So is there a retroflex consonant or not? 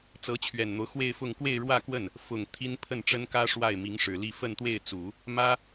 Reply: yes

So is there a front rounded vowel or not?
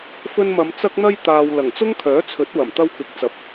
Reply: yes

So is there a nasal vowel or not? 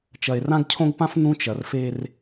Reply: yes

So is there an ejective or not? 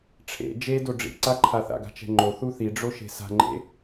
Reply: no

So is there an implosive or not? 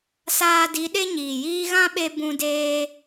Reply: yes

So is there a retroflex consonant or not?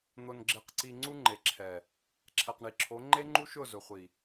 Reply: yes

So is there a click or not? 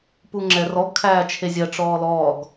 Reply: yes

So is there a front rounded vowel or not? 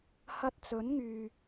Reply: yes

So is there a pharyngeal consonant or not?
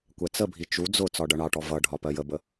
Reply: no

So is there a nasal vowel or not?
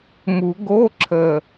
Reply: no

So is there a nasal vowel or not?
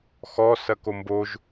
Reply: no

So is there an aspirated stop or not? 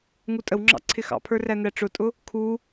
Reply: yes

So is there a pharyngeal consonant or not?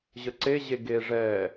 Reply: no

